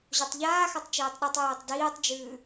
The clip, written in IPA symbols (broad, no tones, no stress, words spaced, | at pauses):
ʑotˤʎaːxatˤ t͡ʃeːtˤɗʉtˤjeːtˤ diːtˤd͡ʒʉː